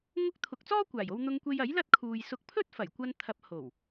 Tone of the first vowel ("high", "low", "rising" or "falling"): high